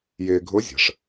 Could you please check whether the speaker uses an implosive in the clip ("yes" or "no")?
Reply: no